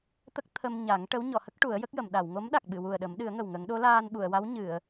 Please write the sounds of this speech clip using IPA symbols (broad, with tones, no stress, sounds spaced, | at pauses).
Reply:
t̪ ə˦˥ k̚ t̪ʰ ə˧ m ɲ a˨˩˦ ŋ ʈ ə˧˥ w ɲ ɔ˨˩˨ h ə˦˥ k̚ ʈ u˨˩˦ ə̯ j ə˦˥ k̚ j ə˨˩˨ m ɗ a˨˩˨ w ŋ o˧˥ m ɗ a˨˩ k̚ ɓ ɨ˨˩˨ w u˨˩ ə̯ ɗ ə˨˩˦ m ɗ ɨ˨˩˦ ə̯ ŋ ə˨˩ w ŋ ə˨˩˦ ŋ ɗ o˧˥ l aː˧ n ɓ u˨˩˨ ə̯ w a˧˥ w ɲ ɨ˨˩˨ ə̯